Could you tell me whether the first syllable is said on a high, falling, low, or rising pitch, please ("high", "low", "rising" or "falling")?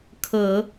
low